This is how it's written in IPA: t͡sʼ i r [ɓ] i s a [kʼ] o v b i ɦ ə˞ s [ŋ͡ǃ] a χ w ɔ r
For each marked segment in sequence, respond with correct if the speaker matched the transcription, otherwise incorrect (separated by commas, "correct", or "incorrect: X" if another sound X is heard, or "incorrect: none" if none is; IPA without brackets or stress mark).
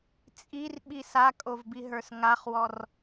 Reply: correct, correct, incorrect: ŋ